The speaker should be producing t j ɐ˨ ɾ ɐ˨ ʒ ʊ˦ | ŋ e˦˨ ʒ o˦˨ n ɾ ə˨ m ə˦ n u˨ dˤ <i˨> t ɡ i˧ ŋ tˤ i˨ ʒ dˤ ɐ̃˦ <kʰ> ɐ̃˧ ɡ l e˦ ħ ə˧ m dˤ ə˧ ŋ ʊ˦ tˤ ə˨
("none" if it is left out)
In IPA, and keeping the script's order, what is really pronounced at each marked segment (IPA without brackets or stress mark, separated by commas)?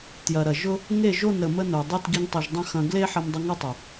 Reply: i˦˨, x